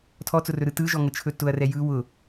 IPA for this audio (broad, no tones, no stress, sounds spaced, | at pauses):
tʰ ɔ t͡s ʊ r ɵ ɾ ɯ t ɯ ʒ ɔ ŋ ə t͡ʃʰ ɵ t ʊ ɐ̯ r ɛ j ɯ w ʊ